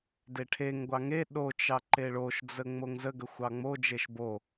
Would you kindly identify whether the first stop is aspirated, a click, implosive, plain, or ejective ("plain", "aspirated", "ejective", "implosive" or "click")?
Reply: plain